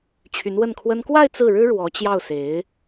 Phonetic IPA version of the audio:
t͡ɕʰ y˧˥ n w ə˥˩ n kʰ w ə˥ n k w a˥˧ ɪ̯ t͡s ɹ̩˥˩ ɻ ɻ̩˥ ɻ w ɔ˧˥ t͡ɕ j ɑ˥˩ ʊ̯ s e˧˥ ɪ̯

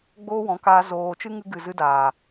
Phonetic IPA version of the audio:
ɡ͡b oː˦ w ɔ̃˨˦ k aː˧ z oː˧ t͡ʃ ɨ˦ ŋ ɨ˧ ɡ ɨ˨ z ɨ˦ d aː˨

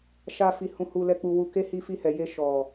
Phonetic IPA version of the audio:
ʃ a˦ f i˧ h ũ˧ h u˧ l ɛ˧ k͡p u˧ w u˧ k e˦ h i˧ f i˧ h ɛ˨ j e˧ ʃ ɔ˨

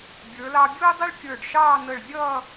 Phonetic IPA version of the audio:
bʲ ə˞˩˧ l ɑ˧ bʲ ʊː˥ dˤ i˥ ɭ kʲ ə˞˧˩ ɖ ʃ ɑː˥˧ n ə˧˩ ɭ zʲ ʌː˥˧

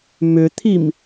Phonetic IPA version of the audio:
m ʏ t̪ʰ i m

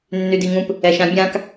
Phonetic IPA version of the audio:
nː y d i ŋ ũ p | ɛ ʃ ã bʲ ã k

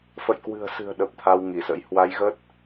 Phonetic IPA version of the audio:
f ə̰˧˨ j k w ɨ̤˨˩ ə̯ s ɨ̤˨˩ ə̯ ɗ ə˨˩ p̚ t̪ʰ a˧ w ŋ i˧˩ s ə̰˧˥ j h w a˨˦ j ɣ ə˦˥ t̚

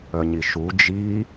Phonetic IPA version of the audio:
œ ɲ i ʃ u d͡ʒ i

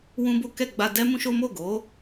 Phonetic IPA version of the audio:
w ũ˦ b o˦ k ɛ˦˨ ɡ͡b a˧ d ɛ˦ m ũ˦ ʃ o˦ m o˦˨ ɡ o˨˦

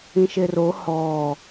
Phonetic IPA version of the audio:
ĩ ʃ e r o h ɔː

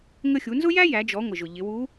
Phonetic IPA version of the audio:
ŋ ə˧ xʲ u˩˧ n z ʊ˥ j æ˥ j æ˩˧ d͡ʒ ɔ˩˧ ŋʷ ɪ˩ ʒ ʊ˩ ʎ ɪ˩˧ w u˧˥

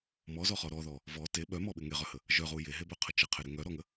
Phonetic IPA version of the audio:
m ɔ z ɔ χ ɔ ɾ ɔ ð ɔ | v ɔ t e ɓ œ m ɔ ɓ ɪ ŋ e ʁ œ h ə | ʒ œ ʁ u j e ɦ e b œ qʰ ə t͡ʃ ə qʰ e ɾ ɪ ŋ œ ɾ ɔ ŋ ə

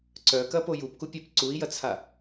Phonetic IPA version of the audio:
ǀ œ k ɐ p o j u p k u pʲ ɛ p ǀ u i̯ j ɐ t͡sʰ a

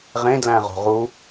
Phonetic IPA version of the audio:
ʁ ẽ d l æ̃ ʁ o̤ ʁ u

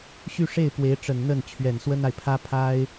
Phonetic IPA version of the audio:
ɕ y˥˧ ʂ e˥˩ ɪ̯ p w e˧˥ ɪ̯ ʈ͡ʂ ə˨˩ n n̪ ə˥˩ n t͡ɕʰ ɥ ɛ˨˩ n s w ə˥ n a˨ ɪ̯ pʰ ä˥ pʰ a˥ ɪ̯

